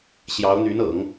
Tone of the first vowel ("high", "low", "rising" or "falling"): rising